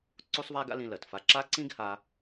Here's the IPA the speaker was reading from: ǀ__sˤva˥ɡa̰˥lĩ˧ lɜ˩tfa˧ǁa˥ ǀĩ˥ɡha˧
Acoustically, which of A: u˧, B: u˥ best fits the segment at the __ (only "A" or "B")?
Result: B